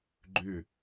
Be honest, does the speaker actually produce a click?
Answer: yes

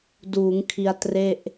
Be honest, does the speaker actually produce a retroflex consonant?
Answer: no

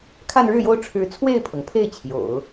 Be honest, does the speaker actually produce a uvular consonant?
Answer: no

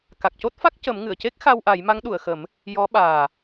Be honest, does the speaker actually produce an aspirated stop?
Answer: no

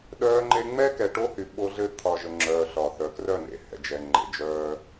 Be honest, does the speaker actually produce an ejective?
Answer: no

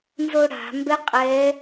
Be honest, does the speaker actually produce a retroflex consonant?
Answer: yes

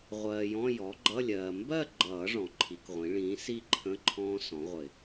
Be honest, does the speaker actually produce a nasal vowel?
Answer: yes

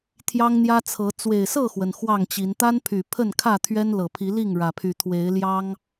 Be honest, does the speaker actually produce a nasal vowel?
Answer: no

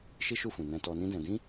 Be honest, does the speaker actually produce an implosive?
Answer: no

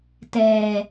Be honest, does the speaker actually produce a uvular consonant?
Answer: no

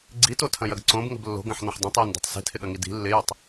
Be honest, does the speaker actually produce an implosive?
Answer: yes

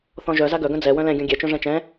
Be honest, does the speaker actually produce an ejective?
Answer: no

